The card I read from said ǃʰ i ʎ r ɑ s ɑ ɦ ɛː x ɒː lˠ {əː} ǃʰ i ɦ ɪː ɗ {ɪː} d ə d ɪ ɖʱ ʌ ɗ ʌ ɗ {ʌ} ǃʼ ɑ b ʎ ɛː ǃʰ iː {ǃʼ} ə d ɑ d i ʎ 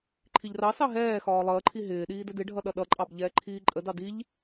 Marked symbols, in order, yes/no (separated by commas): yes, no, yes, yes